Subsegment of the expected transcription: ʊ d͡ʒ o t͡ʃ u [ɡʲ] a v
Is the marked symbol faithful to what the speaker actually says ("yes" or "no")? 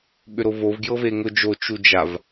no